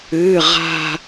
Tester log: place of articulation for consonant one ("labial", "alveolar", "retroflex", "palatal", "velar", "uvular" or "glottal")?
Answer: uvular